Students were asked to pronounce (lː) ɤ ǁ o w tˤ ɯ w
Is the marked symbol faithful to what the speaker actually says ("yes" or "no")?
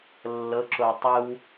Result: yes